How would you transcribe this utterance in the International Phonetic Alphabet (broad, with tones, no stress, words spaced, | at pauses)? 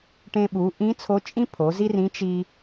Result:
ʈẽ˧ɓu˩˧ʔĩ˧˥ t͡sʰo˧˥t͡ʃʼĩ˥ pʰo˩˧zi˥rĩ˧˥ t͡ʃi˧